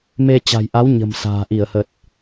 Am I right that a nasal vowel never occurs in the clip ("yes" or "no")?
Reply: yes